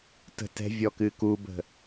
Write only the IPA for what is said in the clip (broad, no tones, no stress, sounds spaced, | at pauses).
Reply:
t ə̤ t ɛ̤ vʲ ɔ k ɨ k u b ə̤